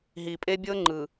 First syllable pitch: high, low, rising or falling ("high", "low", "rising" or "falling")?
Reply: low